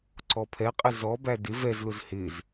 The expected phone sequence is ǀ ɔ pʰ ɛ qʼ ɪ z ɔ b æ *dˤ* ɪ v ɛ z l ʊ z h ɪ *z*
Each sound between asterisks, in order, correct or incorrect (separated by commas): incorrect, correct